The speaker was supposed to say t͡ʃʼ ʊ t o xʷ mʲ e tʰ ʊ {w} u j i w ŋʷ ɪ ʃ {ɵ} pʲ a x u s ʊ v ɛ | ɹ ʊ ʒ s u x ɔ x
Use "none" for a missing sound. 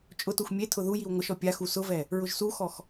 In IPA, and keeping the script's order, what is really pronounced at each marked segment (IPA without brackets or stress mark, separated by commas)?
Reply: ð, ɔ